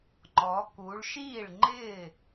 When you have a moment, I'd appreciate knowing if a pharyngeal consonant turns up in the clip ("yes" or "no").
no